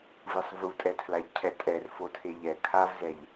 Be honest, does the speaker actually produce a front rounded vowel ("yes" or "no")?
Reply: no